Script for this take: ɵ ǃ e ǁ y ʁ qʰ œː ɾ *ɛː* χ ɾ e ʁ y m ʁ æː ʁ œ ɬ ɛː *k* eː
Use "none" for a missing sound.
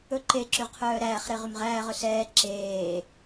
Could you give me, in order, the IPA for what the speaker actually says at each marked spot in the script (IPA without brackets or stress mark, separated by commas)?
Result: æː, ǁ